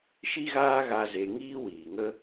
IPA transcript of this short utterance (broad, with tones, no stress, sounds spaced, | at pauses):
ʃ i˦ ɣ aː˦ ɣ a˦ z e˧ ŋ iː˦ w iː˨ ŋ ə˦